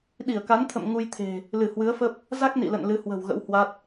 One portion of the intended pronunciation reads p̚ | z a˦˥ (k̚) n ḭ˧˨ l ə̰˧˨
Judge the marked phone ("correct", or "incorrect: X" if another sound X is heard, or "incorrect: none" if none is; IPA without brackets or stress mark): correct